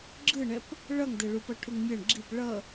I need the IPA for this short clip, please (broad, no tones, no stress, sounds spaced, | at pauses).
ɡ͡ǁ ɯ ɳ ɛ p | ɭ ʌ ŋ d ɛ ɭ u p ʌ ʈʰ u ŋ mʲ ʌ ɳ ɡ͡ǁ i p ɭ ʌ